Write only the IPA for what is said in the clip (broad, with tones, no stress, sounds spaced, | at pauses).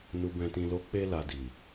n u˨ b ɛ̃˨ t ĩ˨ l o˨˦ k͡p e˧ l a˨ d i˨